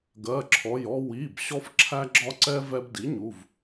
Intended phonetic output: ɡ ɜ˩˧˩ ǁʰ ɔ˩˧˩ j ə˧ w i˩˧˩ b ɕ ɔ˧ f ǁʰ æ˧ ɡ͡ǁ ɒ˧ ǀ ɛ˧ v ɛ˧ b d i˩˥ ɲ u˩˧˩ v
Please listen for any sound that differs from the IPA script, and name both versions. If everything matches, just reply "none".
ə˧ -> ɔ˧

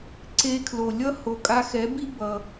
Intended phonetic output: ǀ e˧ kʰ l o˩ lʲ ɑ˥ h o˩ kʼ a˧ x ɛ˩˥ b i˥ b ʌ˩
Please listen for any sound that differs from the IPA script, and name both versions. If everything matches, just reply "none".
ɑ˥ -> ʌ˥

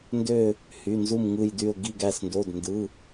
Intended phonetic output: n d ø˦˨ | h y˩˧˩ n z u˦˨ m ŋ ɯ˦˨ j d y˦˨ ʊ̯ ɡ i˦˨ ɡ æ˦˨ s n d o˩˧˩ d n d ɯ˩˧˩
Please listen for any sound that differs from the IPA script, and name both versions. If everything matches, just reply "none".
none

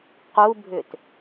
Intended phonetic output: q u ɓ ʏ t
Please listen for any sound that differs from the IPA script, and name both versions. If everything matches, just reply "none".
ɓ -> bʱ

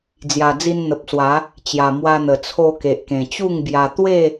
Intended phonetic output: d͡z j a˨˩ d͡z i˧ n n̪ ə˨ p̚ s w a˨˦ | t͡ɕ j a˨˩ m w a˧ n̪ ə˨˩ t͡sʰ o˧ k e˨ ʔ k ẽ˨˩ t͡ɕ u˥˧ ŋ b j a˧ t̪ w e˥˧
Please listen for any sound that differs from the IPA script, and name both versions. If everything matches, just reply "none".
none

